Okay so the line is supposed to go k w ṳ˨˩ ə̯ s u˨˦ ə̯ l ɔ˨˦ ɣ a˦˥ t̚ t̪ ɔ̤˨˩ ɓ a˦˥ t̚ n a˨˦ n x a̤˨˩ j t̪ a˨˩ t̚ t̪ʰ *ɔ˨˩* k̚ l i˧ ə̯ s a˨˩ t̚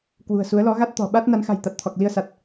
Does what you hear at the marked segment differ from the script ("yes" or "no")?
no